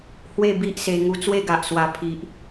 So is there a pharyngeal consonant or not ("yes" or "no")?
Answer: no